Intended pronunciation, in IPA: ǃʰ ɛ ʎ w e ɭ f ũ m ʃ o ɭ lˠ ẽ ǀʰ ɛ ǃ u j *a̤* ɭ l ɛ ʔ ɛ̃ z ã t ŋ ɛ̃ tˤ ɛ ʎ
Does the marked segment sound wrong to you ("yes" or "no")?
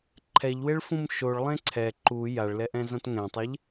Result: yes